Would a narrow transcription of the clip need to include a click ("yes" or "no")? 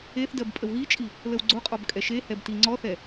yes